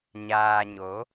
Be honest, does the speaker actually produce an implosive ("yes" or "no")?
no